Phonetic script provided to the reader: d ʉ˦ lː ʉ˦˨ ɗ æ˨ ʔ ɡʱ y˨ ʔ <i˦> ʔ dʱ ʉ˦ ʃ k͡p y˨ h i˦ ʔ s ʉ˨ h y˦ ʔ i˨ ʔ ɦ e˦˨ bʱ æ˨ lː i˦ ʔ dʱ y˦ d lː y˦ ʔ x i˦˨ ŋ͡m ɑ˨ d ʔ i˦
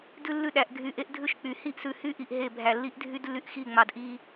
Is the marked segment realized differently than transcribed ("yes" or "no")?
yes